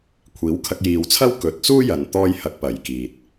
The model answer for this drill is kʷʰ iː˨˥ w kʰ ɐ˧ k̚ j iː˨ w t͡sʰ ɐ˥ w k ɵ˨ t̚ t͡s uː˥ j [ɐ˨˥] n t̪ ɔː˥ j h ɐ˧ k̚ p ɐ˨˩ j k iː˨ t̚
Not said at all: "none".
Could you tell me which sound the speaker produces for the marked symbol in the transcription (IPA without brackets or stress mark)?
ɐ˨